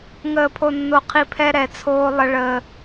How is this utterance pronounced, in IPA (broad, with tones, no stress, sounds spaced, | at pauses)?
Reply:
ŋ əː˨ pʰ o˨ nː o˨ qʰ i˨ pʰ ɛ˦ ɾ ɛ˨ t͡sʰ oː˦ lˠ ə˦ ɭ əː˦